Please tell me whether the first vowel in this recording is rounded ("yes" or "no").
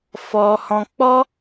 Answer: yes